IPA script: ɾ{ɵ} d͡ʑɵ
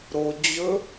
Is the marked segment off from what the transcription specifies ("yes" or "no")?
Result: yes